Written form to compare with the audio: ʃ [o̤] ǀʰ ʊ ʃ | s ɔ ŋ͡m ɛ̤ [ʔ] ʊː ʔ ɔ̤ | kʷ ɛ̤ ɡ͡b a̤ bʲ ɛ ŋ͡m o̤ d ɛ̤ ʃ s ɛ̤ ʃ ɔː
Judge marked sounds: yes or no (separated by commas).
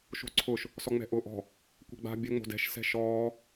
yes, yes